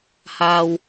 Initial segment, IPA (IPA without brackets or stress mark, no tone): h